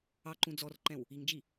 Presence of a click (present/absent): present